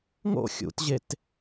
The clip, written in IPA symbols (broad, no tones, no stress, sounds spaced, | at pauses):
ŋ o̰ xʲ ṵ t ʑ e t